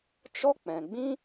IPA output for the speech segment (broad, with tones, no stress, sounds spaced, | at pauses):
t͡ʃ ɔ˦ k͡p ɛ̃˨ ɡ͡b ĩ˦